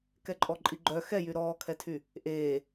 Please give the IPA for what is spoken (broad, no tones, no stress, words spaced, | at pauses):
kɛǃʼɔǃʼiɡ͡ǃœ xɛjy ɾɔːkʰɛtʰy | ʔeː